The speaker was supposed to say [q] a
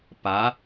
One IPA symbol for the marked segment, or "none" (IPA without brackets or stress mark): p